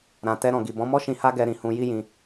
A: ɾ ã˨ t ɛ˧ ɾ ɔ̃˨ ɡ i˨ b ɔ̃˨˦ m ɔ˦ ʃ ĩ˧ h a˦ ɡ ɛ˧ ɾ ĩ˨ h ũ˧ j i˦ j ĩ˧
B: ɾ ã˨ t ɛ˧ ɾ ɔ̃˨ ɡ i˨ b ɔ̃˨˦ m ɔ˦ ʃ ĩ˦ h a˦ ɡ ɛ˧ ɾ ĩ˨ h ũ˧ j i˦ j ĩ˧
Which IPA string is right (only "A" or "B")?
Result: A